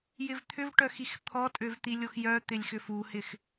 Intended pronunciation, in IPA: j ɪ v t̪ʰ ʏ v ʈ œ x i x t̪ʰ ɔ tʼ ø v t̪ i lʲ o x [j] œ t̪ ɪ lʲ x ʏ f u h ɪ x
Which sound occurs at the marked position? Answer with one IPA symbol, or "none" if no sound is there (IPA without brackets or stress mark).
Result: j